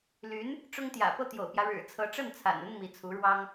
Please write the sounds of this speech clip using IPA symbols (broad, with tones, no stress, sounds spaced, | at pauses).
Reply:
l y˧˥ n | ʈ͡ʂ ʊ˥ ŋ t̪ j ä̰˨˩ p ɤ˥˩ t̪ j o̰˨˩ ʊ̯ p j ä˦ ɻ ɻ̩˨˩ t͡sʰ ɤ˧˥ ʈ͡ʂ ə˥˩ n t͡sʰ a̰˨˩ n ə˥ n m i˧˥ t͡sʰ u˧˥ ɻ w ɑ˥ ŋ